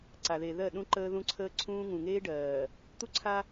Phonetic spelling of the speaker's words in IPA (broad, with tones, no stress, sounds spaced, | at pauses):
ǀ a˨ ð e˨ ð ɜ˦˨ ɗ ũ˦ ǃ əː˦ ð ũ˦ ǀʰ əː˦ ǀʰ ũː˦ ŋ ũ˨ ŋ eː˦ ɖ ɜː˨ | t̪ u˦ ǀʰ a˦